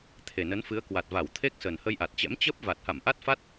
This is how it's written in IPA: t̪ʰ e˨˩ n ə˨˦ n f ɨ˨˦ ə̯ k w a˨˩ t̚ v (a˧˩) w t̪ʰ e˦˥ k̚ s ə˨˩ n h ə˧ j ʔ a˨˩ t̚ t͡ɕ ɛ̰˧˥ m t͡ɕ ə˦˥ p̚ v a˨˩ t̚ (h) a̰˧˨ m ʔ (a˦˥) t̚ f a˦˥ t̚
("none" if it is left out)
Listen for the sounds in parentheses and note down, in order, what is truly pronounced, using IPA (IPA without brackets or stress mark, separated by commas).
a˧˩, h, a˦˥